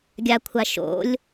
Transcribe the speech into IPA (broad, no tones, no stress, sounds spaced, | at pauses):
ɡʲ a kʷʰ a ʃ o̰ lʲ